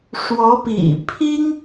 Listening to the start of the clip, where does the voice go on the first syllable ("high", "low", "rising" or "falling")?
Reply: rising